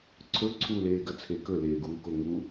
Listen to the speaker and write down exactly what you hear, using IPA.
ǀʰ ɵ ǀʰ u l eː ɡ ɐ t͡sʰ e k ɵ l eː ɡ uː k o ŋ u

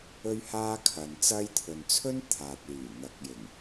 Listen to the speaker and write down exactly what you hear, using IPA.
ɵ˥ ɥ h aː˥ kʰ ɐ˨ n t͡s ɐ˥ j t̪ʰ ɵ˨ n t͡sʰ ɵ˥ n t̪ʰ aː˨ t̚ l yː˨˩ n̪ ɐ˨˥ k̚ j ɪ˨˩ ŋ

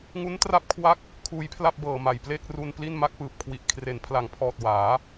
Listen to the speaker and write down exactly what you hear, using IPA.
ŋ u˦˥ n t r a˥˩ p̚ kʰ w a˥˩ k̚ | kʰ uː˧ j pʰ l a˥˩ p̚ b ɤː˨˩ m a˨˩ j p l e˥˩ k̚ r u˧ n p l i˥˩ n m a˦˥ k̚ p ɯː˨˩ p̚ kʰ w i˨˩ ʔ kʰ r e˨˩ n pʰ l a˩˦ ŋ pʰ ɔː˨˩ t̚ w aː˩˦

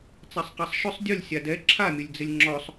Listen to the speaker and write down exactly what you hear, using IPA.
t͡s a sˤ q a sˤ ʃ ʊ sˤ dʲ ʊ lʲ sʲ a d ɛ ǁʰ a mʲ ʊ lʲ d͡z ɪ lʲ ŋ͡ǁ ɔ sˤ

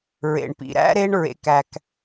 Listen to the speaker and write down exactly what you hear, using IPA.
ɹ ḛ˩ ɳ p ḭ˩ ɾ æ̰˥ ɾ e˦ ɳ ɹ ḛ˩ k æ˩ k

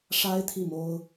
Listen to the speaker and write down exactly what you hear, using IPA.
ʂ a˥ ɪ̯ t̪ʰ i˥˩ m o˥ ʊ̯

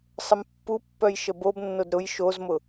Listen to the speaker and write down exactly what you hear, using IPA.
sˤ ə m pː u pː œ j ʃ ə b o b nː o d ɾ ʊ j ʃ o z m ʊ

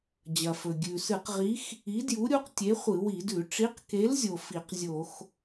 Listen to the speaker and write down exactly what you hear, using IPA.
d͡ʑ ɐ˩ f ɵ˩ ɡʲ ʉ˩ s ɨ˧˩˧ q ʁ i˨˥ x | i˨˥ d j u˨˥ ɾʲ u˨˥ q tʲ e˨˥ χʷ ɨ˧˩˧ w i˧˩˧ d ʉ˧˩˧ ʈ͡ʂ i˨˥ q k e˨˥ l zʲ o˩ f i˧˩˧ q zʲ o˧˩˧ x

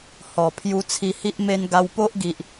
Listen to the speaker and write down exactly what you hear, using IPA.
h ɔ˨˩ pʰ j u˧ t͡sʰ i˧ h i˦ ʔ m e˧ n ɡ a˧ w p o˦ ʔ ɡ i˨ ʔ

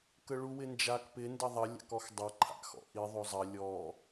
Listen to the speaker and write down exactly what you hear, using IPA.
k ə ɭ u w ɪ n d͡ʒ a k p ɪ n d ə ðˤ ɐ lʲ a̰ k ɔ x dˤ ɐ ǃʰ a̰ x ɔ̰ ʔ i ðˤ o zˤ ɐ lʲ ɔ

